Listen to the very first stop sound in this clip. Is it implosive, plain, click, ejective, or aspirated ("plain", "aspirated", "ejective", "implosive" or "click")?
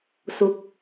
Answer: plain